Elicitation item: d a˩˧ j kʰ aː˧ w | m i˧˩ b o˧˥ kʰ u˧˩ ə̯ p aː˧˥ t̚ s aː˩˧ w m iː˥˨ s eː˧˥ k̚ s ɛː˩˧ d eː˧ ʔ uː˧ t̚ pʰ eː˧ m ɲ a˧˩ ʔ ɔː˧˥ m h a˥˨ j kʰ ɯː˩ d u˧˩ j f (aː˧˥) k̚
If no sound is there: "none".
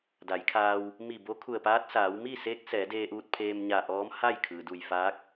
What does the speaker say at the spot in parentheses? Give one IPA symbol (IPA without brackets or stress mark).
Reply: aː˧˥